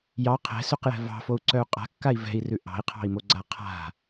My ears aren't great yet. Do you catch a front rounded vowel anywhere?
yes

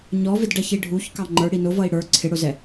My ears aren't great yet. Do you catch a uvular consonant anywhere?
no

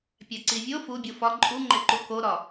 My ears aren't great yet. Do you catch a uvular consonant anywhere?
no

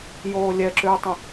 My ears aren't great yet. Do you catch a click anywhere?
yes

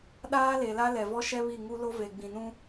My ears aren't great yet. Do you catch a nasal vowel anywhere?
yes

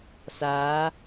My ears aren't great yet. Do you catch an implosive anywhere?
no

